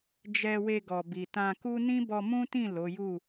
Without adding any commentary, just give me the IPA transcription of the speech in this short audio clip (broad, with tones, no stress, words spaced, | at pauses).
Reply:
d͡ʒɛ˧we˧ɡɔ˨bi˨ tã˧ku˦ nĩ˦bɔ˧mũ˦tĩ˦˨ lo˨˦ju˦˨